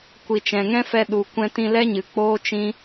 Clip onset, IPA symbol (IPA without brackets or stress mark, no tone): kʷ